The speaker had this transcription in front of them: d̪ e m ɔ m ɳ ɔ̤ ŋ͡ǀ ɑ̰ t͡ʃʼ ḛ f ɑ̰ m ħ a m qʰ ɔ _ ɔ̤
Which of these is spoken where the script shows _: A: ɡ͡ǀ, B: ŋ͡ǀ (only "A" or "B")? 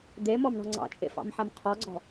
A